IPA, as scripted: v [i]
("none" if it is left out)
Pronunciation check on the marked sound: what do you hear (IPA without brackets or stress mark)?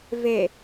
e